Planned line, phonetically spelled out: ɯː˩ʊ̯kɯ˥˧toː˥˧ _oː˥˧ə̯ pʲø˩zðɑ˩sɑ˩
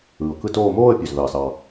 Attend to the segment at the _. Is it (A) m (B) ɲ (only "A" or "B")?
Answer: A